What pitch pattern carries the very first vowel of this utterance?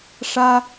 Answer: high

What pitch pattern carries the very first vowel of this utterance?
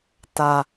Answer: low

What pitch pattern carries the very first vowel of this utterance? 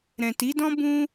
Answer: low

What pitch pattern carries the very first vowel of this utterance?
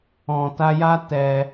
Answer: low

